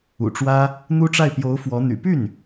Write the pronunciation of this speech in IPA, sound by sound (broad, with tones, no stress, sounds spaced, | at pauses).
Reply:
ṵ˨˩ ʈ͡ʂ w ä˥ | n̪ u˥ ʈ͡ʂ a˥˩ ɪ̯ p j o˧˥ ʊ̯ f w ɔ˧˥ n̪ y̰˨˩ p y˥˩ n